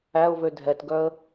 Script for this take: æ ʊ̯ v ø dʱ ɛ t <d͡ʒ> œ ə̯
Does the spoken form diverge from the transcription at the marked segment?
yes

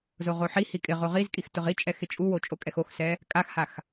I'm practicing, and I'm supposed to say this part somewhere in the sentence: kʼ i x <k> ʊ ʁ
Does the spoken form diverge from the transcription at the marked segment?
yes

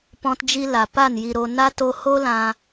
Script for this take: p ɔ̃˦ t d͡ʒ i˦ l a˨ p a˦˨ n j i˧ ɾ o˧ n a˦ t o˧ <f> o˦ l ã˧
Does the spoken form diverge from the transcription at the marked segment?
yes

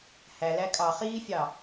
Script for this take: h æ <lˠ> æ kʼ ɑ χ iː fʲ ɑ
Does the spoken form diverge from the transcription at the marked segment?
yes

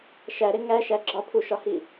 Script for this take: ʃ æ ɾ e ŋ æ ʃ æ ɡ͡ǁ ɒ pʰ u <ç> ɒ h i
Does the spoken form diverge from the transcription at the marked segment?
yes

